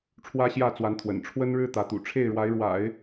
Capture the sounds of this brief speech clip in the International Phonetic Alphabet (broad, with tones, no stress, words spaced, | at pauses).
ʈ͡ʂʰwä˥ɕjä˥˩t͡swa˧˥nt̪ʰwə̰˨˩n ʈ͡ʂʰwə˥nɻɻ̩˥ t̪ä˧˥t̪ṵ˨˩ ʈ͡ʂʰe˥˩ɪ̯ɻwa˧˥ɪ̯ɻwa̰˨˩˦ɪ̯